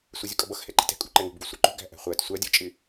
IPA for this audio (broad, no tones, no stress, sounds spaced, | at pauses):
sʷ ɛ zʲ ʊ kʼ ʌ b ʌ x h ɛ ǃ i̤ t ɛ̤ kʼ ṳ ǃ ɛ ŋ ṳ b ɡ u sʷ ɛ ǃ ṳ ɡ æ̤ ʔ æ̤ χʷ æ t sʷ æ dʲ ɜ t͡ʃʼ ɪ